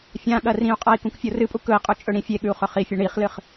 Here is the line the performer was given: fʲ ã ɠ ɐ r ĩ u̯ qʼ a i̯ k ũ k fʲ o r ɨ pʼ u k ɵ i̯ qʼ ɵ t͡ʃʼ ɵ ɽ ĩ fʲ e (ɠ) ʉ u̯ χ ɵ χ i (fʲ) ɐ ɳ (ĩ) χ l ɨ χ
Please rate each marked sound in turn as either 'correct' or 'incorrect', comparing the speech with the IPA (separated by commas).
correct, correct, incorrect